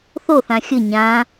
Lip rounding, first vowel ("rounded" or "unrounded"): rounded